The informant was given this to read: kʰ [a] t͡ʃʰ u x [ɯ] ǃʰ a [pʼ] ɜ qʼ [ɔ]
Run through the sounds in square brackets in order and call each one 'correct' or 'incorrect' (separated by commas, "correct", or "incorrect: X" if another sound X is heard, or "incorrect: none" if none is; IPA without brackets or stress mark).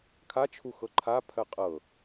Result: correct, incorrect: ɤ, incorrect: pʰ, incorrect: ɤ